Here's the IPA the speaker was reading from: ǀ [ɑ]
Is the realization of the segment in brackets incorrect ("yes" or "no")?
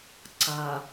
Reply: yes